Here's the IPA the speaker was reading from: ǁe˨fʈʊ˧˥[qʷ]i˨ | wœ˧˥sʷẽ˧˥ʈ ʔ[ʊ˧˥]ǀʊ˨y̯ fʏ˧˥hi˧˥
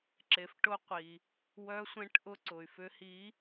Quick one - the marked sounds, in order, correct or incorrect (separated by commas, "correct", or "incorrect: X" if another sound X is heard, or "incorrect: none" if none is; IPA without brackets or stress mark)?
correct, correct